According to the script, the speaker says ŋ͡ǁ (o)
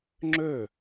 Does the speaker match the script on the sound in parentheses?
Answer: no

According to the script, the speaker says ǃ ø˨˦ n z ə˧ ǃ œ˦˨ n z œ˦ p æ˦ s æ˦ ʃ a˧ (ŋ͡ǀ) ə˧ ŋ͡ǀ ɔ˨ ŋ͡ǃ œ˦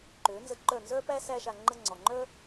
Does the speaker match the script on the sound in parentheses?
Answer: no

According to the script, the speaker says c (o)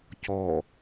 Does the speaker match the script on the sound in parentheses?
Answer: no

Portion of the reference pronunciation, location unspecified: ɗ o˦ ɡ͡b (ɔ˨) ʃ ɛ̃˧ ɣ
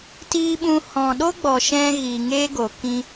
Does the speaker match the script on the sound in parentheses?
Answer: yes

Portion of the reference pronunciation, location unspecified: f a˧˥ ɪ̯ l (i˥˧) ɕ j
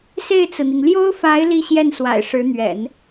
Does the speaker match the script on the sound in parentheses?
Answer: yes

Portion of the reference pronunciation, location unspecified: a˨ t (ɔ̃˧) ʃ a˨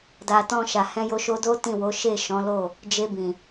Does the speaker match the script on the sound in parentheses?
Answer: yes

